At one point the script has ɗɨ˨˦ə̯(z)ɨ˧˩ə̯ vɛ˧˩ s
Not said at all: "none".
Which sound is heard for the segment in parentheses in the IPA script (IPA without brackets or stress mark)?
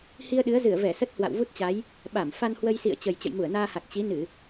z